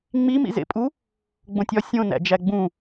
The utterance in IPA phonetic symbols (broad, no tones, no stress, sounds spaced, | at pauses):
ŋ͡m i m ḭ z ḛ pʼ u | ɡ͡b õ tʲ ɒ sʲ õ n æ̰ d͡ʒ æ ɡ͡b ũ